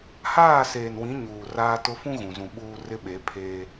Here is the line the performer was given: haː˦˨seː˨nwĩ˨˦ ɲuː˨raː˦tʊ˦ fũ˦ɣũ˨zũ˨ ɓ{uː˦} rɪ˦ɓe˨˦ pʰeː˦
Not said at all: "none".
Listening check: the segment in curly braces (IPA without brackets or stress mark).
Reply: uː˦